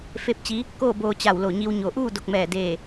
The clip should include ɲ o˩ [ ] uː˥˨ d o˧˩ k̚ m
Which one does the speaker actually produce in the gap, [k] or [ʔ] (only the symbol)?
ʔ